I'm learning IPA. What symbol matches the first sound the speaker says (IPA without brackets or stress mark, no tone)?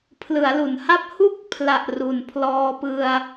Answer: pʰ